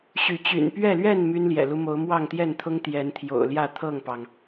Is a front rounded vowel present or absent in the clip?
present